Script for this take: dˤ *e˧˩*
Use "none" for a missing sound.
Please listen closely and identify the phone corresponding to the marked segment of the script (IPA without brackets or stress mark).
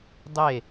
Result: e˧˩